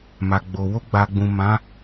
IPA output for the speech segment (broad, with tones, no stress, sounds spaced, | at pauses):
m a˨ ɡ͡b o˨ w o˧ ɡ͡b a˨ ɡ͡b ũ˨ m ã˨˦